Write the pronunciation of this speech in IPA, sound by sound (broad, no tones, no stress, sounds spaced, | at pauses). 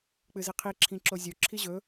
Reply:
k͡p ɨ z i qʰ i ǁʰ ĩ ǁ o zʲ o ǁʰ i ʑ ɵ